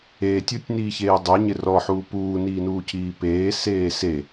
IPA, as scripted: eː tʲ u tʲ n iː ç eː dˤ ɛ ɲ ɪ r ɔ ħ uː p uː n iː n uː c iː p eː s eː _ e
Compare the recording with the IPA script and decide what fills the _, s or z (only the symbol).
s